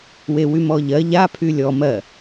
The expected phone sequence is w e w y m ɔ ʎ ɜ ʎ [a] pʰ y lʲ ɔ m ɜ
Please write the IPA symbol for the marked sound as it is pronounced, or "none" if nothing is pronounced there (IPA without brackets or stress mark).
a